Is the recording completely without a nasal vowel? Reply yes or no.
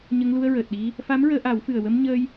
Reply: yes